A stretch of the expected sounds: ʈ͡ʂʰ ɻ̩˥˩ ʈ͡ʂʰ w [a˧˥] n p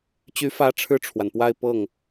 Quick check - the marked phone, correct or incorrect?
incorrect